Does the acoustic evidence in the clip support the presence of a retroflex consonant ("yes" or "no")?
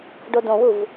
yes